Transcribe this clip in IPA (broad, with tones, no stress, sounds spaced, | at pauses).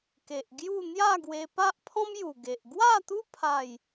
k e˨ ʔ ɡ j u˥˧ n̪ j a˥˧ ɡ w e˧ p a˦ ʔ pʰ ɔ̃˦ m j u˨˩ ɡ e˨ ʔ ɡ w a˥˧ t̪ u˦ pʰ a˥˧ j